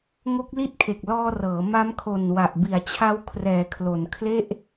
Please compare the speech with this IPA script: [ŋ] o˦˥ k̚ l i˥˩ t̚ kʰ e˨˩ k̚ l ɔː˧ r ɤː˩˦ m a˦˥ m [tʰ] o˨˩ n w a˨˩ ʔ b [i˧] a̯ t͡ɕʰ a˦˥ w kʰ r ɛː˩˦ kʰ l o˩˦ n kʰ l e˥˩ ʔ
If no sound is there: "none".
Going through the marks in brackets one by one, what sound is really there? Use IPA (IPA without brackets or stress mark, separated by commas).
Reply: ŋ, kʰ, i˩˦